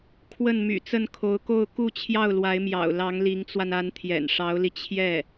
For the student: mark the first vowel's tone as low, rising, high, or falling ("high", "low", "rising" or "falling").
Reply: falling